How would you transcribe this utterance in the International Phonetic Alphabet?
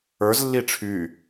ə˞ z lː i ʈ͡ʂʰ y

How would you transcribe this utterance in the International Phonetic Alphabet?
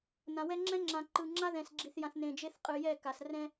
n ã˨ w ɛ˦ ŋ͡ǁ ɛ̃˦ ŋ͡ǁ ã˨ ǃ ɯ˨ ŋ͡ǁ a˦ ð ɛ̃˨ s ɡ͡ǁ i˨ θ j ã˨ θ n ẽ˨ d͡ʒ e˦ θ qʼ ɯ˨ j ɛ˦˨ k a˨ s r ɛ̃˦

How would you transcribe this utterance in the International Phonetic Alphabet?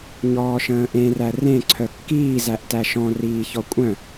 ɲ ɔː ʃ ə̃ː ʔ ẽ r æ r ẽ ǀʰ œ kː iː z æ ʔ t æ ʃ ɔ̃ r iː ç ɔ kʷʼ œ̃

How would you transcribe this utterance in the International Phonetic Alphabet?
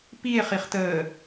p i e̯ χ i χ t əː

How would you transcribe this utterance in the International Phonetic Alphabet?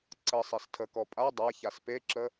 ǀ ə sˤ e s tʰ ə k ɔ pʼ a dˤ a ç a s p e ǁ ə

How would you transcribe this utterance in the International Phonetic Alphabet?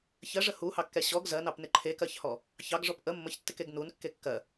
ç ɜ ʐ ə h u h ɑ kː ɛ ɕ ɔ ɡ z ɜ n ɑ p n ɪ ǃʰ e k ɜ ç h ɔ | ç ɑ ɡ ʐ ɔ p ʔ ə mː ə ç tː ɪ k e ɡ n u n kː e kː ɜ

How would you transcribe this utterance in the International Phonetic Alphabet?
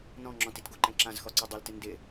n ɔ̃ ŋ͡ǁ ɔ̃ t i t ɡ o ǃ ɛ̃ ǁ ã z x ɔ ǀ o dˤ o l t ɪ n d ɪ

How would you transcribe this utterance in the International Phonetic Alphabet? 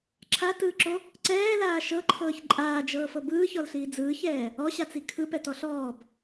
ǁʰ a t ɯː ǁ o | ǀ ɛː l aː ʃ ɤ ǃʰ ɤː ç ǃʼ aː d͡ʒ ɤː f ɤ b ɯː ç ɔ l ɬ iː d͡z ɯː ç ɛː | ɔ ɕ a t͡s i kʰ ɯ p ɛ t ɔ ɬ ɔː b

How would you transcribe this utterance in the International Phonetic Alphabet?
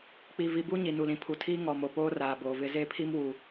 k͡p i˨ v i˨ b u˦ ɲ i˨ n u˨ l ĩ˨ pʰ u˨ tʰ iː˦ ŋ ɔ˨ m o˨ p oː˦ r aː˨ b oː˨ v ɪ˦ z e˦ pʰ i˦ m w u˨

